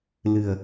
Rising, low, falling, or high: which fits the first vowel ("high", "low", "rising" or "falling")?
low